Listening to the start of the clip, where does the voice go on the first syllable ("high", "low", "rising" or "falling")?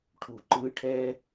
low